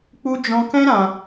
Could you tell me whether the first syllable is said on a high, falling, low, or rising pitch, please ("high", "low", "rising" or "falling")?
high